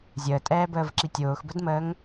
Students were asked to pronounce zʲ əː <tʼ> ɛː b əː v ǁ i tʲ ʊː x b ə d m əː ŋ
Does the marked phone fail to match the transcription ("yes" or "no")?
no